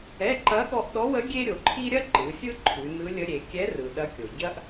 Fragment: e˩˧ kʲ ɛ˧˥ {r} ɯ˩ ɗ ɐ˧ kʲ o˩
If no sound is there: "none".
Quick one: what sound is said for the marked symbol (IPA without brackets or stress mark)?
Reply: r